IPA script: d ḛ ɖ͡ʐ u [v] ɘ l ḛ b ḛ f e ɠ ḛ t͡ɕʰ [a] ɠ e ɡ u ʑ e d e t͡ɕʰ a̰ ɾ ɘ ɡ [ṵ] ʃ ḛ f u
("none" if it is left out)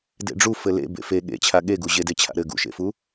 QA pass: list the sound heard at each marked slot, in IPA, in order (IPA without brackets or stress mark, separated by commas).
f, a, ṵ